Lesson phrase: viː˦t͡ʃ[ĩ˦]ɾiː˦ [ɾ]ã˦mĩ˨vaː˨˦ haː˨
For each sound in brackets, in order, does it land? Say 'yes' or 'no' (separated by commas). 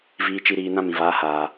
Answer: no, no